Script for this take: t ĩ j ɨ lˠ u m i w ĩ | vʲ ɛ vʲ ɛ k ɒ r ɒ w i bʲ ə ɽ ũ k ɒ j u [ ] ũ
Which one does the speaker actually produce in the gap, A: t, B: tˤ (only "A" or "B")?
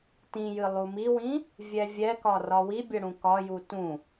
A